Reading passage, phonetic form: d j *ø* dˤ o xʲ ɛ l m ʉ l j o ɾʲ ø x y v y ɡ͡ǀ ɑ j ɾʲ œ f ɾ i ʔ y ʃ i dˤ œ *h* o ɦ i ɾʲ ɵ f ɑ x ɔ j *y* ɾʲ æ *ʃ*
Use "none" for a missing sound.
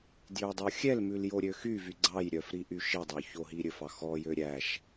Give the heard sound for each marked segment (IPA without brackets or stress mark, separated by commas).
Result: ø, ç, ø, ʃ